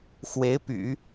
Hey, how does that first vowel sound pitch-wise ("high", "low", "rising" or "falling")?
rising